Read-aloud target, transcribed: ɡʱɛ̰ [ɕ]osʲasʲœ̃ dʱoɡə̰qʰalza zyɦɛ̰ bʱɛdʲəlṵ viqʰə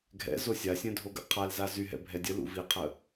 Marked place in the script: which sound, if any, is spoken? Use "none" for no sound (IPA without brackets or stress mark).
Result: z